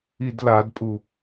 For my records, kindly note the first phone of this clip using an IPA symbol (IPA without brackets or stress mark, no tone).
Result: i